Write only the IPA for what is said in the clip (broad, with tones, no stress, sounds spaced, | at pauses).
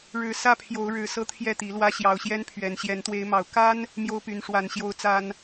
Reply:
ɻ ɻ̩˨˦ s ä˥˨ pʰ j o˨˦ ʊ̯ ɻ ɻ̩˨˦ s ɤ˦ t̪ʰ j ɛ˥˨ t̪ i˨˦ l w ä˦ ɕ j ɑ˨˩ ʊ̯ ɕ j ɛ˦ n pʰ ɥ ɛ˨˩ n ɕ j ɛ˨˦ n t̪ w e˨˦ ɪ̯ m ɑ˨˩ ʊ̯ k a˦ n | m j o˦ ʊ̯ p y˨˦ n ʂ w a˨˩ n ɕ j o˨˦ ʊ̯ t͡s a˦ n